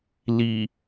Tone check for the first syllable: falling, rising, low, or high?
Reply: low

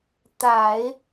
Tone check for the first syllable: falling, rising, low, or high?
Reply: low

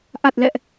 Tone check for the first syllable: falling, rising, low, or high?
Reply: low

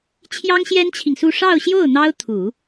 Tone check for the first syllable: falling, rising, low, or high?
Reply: high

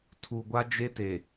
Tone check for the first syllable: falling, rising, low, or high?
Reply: low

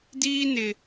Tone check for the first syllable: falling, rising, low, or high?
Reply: high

